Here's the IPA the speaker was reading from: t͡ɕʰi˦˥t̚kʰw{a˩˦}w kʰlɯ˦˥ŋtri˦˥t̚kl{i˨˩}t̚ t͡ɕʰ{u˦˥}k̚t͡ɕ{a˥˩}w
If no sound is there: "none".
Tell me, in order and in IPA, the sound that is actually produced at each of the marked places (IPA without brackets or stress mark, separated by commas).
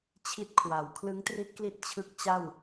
a˩˦, i˥˩, ɯ˦˥, a˥˩